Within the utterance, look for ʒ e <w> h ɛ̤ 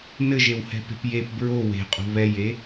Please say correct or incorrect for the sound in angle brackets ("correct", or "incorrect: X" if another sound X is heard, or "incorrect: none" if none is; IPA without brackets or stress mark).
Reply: correct